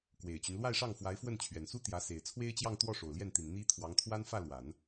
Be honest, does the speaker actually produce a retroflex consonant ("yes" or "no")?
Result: yes